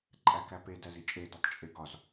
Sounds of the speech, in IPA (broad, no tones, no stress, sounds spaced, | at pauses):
ǃʼ æ k æ p e d æ z i t͡ʃʼ e d u tˤ t͡ʃʼ e ɡ ɒ z